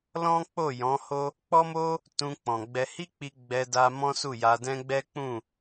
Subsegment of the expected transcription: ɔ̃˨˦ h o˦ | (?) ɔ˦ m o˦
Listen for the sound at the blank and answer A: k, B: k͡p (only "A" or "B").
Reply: B